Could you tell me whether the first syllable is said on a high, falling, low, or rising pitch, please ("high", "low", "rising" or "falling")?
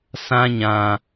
high